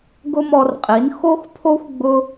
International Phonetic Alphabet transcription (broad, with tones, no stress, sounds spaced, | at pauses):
ɡ ʊ˦ m ɔ˧ r qʼ i˨˦ n x o˦ x pʰ o˦ xʷ ɡ͡b ʊ˦